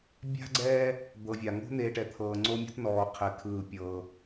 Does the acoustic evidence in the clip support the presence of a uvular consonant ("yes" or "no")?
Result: yes